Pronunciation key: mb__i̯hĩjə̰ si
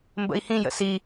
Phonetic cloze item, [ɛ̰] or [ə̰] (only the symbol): ə̰